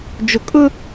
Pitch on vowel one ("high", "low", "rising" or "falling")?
low